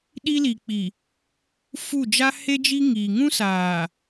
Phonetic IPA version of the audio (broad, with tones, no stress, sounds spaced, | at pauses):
ɗ i˦ l i˨ k͡p i˨ | f u˦˨ d͡ʒ a˦ h e˦ d͡ʒ i˦ ŋ iː˨ ŋ ũ˦ s aː˨